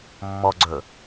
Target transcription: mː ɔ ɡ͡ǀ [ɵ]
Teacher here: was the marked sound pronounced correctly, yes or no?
yes